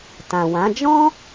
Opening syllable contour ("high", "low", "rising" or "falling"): low